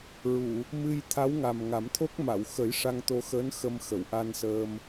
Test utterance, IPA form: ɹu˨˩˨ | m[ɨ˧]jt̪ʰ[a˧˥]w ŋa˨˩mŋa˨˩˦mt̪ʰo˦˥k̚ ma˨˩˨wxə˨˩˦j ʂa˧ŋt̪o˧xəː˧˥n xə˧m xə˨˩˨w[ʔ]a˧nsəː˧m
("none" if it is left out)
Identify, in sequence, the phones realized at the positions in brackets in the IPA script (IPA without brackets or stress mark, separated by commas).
ɨ˧, a˧˥, ʔ